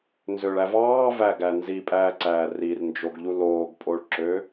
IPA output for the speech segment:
nzøɭæ vɑːvæɡæ nzipʼæːǀæː rirnd͡ʒoɡʎu loːɡpʼoɭǁø

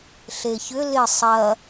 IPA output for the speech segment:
ɬeçʏ lɪ sˤɐ

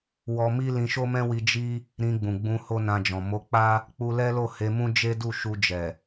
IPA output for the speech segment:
wɔ˧mi˦ lĩ˧ʃo˦mɛ̃˦wi˧ d͡ʒi˦ | ɾĩ˧ɡ͡bũ˨ɡ͡bũ˧ ho˦nã˧d͡ʒɔ̃˨ mo˨˦k͡pa˦ | k͡pu˧lɛ˦lo˦˨ he˧mũ˦ d͡ʒe˦du˦˨ ʃu˧d͡ʒɛ˨

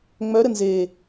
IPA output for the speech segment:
ŋ͡mœ ɾənze

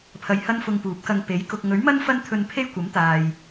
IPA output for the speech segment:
pʰɐ˧jhɐ˥n fʊ˧ŋpuː˨˥p̚kɐ˧ŋ pe˨˥j kʊ˨k̚ŋɵ˨˥ɥmɐ˥n fɐ˥nt̪ʰɵ˧n pʰe˥jkʷɐ˨˥mt̪aː˨j

